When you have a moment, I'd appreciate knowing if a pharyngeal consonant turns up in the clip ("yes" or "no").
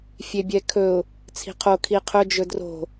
no